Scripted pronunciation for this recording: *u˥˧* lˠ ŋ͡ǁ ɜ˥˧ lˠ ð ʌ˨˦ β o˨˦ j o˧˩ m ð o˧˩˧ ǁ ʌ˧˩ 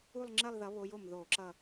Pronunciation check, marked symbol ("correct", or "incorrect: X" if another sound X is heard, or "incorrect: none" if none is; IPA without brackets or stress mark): correct